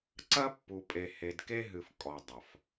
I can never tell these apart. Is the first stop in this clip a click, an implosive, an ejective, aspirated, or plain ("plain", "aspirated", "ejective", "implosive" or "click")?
click